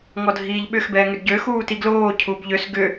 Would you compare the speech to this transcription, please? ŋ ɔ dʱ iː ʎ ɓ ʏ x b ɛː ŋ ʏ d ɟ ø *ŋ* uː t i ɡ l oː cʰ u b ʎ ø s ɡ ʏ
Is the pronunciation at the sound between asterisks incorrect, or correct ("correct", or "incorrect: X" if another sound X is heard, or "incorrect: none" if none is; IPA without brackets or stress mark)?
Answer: incorrect: x